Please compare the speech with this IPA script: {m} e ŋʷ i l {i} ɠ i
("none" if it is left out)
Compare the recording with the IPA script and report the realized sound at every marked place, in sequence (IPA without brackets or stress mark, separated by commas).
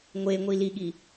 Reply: ŋʷ, i